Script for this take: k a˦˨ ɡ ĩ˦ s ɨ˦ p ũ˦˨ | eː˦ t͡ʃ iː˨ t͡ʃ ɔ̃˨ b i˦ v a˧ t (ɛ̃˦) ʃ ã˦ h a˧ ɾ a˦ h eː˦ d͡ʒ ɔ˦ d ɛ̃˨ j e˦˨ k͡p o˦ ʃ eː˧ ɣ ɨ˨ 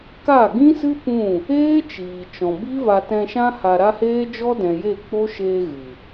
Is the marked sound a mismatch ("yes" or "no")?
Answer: yes